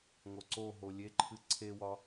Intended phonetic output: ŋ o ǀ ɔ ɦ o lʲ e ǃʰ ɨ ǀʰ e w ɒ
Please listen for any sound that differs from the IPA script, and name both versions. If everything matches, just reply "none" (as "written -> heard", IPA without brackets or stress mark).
ɔ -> o